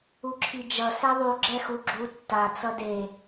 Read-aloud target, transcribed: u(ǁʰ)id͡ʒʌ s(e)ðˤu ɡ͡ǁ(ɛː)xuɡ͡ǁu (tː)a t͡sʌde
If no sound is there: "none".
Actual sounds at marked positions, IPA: ǁʰ, e, ɛ, tː

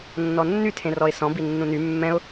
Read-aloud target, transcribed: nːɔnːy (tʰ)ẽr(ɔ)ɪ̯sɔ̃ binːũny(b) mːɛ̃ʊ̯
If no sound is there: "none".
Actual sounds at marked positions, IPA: tʰ, ɔ, none

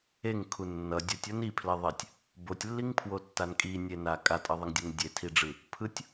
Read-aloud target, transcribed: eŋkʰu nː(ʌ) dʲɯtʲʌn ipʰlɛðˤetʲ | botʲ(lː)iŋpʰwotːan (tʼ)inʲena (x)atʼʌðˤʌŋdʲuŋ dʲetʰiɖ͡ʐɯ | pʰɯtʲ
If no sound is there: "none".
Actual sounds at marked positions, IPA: ʌ, lː, kʼ, kʼ

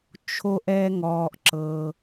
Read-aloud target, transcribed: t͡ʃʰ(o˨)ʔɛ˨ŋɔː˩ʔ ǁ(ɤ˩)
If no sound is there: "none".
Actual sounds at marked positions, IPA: o˨, ɤ˩

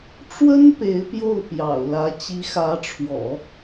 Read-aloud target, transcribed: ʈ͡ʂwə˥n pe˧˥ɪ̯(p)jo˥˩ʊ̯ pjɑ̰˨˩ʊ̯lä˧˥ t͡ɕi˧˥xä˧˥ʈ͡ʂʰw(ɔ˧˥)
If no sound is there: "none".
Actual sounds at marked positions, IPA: p, ɔ̰˨˩˦

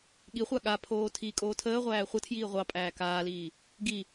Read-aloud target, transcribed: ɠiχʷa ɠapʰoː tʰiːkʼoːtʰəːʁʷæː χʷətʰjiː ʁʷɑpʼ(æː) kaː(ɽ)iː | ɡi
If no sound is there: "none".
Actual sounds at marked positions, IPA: æː, l

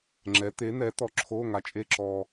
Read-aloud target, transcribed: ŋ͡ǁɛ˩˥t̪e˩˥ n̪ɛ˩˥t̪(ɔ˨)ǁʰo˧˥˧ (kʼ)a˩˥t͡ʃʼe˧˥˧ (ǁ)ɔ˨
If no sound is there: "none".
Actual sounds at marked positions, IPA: ɔ˨, ŋ, ǁ

